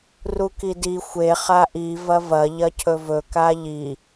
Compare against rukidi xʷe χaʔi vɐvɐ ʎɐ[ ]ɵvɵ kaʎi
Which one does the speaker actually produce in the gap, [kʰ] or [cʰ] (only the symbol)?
cʰ